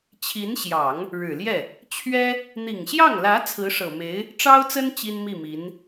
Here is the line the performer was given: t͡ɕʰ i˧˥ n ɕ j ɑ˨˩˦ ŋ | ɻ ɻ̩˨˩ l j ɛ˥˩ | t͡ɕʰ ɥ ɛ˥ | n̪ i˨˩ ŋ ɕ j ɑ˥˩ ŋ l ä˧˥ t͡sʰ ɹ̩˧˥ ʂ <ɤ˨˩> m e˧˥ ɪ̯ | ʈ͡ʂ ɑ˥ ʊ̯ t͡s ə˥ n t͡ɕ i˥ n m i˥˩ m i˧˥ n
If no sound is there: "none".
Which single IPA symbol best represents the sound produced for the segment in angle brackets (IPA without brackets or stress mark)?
ɤ˨˩